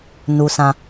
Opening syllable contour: high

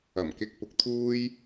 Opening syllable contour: low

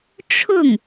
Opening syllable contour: falling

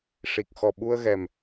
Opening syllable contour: low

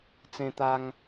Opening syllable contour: high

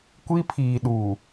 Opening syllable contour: high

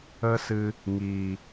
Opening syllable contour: high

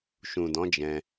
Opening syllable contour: low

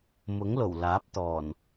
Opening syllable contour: rising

